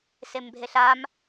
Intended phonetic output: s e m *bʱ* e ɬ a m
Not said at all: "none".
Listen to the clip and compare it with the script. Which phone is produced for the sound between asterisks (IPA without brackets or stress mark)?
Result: bʱ